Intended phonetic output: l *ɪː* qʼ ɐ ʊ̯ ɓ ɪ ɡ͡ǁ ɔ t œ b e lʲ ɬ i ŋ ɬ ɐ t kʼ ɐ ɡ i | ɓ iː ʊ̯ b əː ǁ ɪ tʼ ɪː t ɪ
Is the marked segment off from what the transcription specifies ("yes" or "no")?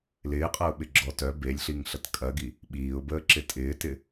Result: no